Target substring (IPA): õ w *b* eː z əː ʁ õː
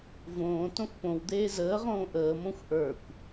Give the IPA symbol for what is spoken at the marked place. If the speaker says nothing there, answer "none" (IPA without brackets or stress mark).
d̪